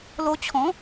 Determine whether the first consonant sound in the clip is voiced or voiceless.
voiced